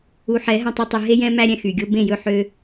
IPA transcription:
u˨ ħ ɛ˨˦ ɦ ɛ̃˨ tˤ ø˨ tˤ e˨ ɦ e˦ j ɛ̃˦ m æ˦ ɾʲ ɛ̃˨ x y˨ ɡʲ o˦ b ẽ˦˨ j ɵ˦˨ ħ ø˦

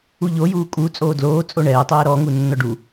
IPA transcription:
u ʎ o j uː kʼ u t͡sʼ oː d l oː t͡sʼ o ɳ ɛː tˤ ɛː ɾ ɔ ŋ u nː ɔ ɖ u

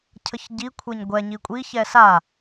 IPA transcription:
cʰ ə ç ɟ i kʷʰ e ɲ ɡʷ ɛ ɲ i kʷʼ i ç ɛ s a

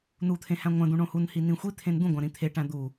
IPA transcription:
n u t̪ʰ ẽ h æ̃ ŋʷ æ̃ d̪ ũ ɳ õ h u n h i n ĩ xʷ i t̪ʰ ẽ n d̪ ũ ɡʷ æ̃ ɾ ĩ t̪ʰ e ʈ æ̃ d̪ u

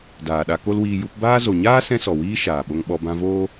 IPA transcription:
d aː˨ ɗ a˧ k o˦ l w iː˧ j u˧ p b aː˦ z o˨ ɲ aː˦ s ɛ̃˦ s ɔ˨ w iː˦ ʃ aː˨ ɓ o˧ ŋ ɓ ɔ˧ b ã˧ v oː˦

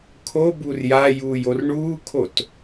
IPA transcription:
kʰ o b u r j a j uː j o r ɳ uː kʰ o t

